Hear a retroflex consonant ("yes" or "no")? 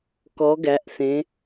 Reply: no